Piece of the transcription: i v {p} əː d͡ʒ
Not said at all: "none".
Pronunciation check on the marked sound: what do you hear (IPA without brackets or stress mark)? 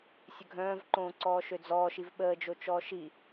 ɓ